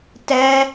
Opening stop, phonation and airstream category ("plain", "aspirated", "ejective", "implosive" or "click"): plain